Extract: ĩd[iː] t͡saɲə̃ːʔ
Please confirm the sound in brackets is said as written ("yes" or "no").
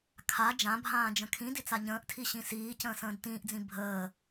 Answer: no